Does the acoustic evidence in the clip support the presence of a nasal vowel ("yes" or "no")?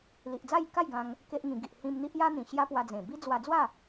yes